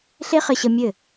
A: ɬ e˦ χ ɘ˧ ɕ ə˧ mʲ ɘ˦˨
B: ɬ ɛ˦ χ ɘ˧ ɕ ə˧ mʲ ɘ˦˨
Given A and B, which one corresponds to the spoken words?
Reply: A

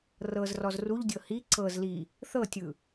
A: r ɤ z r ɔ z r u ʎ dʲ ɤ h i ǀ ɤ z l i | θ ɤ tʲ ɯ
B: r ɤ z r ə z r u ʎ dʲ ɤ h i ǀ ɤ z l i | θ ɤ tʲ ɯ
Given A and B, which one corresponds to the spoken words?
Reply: A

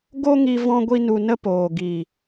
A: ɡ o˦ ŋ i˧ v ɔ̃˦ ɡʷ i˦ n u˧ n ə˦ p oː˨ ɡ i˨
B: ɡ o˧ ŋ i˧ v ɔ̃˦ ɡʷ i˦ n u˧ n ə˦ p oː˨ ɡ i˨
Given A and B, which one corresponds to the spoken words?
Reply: A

